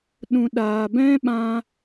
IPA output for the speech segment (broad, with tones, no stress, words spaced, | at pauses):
ɗũ˨ɗaː˨bɛ̃˦ɓã˧